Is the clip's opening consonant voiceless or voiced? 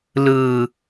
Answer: voiced